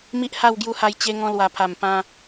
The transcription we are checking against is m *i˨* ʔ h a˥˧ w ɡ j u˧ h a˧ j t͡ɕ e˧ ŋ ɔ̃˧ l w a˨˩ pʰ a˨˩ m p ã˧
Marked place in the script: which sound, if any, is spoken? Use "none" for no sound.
i˦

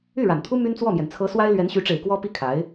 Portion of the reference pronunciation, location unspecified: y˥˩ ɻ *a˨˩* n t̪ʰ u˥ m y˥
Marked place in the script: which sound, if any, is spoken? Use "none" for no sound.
a˨˩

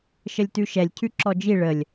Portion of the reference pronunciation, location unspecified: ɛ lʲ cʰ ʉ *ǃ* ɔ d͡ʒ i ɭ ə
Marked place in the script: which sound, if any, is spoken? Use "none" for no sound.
ǁ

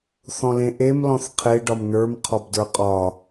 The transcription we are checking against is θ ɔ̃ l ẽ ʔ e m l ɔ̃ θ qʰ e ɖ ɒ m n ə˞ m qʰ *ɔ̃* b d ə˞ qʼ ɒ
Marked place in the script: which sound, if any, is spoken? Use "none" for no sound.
ɔ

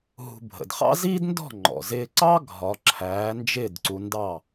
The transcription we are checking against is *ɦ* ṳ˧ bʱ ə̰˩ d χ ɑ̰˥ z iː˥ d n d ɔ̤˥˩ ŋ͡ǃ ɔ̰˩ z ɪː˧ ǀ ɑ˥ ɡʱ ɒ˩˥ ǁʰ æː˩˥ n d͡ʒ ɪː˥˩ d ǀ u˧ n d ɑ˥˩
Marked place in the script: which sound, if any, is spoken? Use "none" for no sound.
ɦ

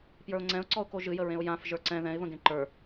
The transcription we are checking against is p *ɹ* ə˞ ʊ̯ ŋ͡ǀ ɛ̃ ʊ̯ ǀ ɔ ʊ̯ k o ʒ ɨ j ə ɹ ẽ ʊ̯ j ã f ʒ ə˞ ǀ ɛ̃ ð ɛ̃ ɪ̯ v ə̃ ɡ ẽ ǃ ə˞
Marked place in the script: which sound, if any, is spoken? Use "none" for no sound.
j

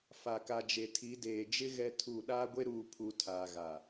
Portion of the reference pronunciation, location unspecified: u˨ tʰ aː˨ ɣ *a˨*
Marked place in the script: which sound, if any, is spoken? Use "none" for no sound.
a˨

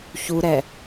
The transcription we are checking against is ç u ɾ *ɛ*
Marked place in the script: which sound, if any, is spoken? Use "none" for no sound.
ɛ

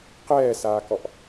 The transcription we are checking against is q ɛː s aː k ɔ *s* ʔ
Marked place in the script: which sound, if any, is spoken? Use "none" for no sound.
none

